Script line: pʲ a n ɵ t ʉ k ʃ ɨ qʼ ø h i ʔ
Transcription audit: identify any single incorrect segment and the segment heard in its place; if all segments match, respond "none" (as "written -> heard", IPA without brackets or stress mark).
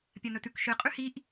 ø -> ʉ